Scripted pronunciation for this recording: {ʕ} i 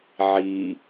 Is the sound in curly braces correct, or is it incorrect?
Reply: correct